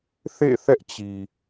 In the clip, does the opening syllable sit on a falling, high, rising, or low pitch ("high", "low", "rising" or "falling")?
falling